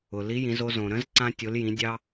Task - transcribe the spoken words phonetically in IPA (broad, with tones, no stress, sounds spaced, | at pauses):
ʊ˩ l i˧˥ j ĩ˩˧ z o˧ z õ˩ ɾ ə̃˧˥ z ǀ ã˧ tʲ o˩˧ l j ĩ˩˧ dʲ ɑ˧